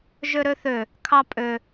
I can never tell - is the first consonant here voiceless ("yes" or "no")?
no